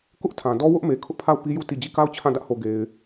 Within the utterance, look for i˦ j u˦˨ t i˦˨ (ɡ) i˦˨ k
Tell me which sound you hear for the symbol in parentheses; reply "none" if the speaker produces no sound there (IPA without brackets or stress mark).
d͡ʑ